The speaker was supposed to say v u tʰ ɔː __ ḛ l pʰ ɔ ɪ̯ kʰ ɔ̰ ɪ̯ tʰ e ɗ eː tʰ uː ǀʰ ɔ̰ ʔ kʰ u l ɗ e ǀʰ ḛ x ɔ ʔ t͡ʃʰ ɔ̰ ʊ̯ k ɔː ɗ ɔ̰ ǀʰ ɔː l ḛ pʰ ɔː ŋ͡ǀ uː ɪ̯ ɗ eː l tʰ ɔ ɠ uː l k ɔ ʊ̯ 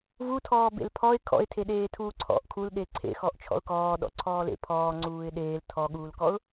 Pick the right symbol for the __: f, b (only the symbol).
b